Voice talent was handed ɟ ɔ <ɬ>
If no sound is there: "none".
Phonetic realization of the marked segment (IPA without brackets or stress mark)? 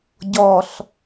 ɬ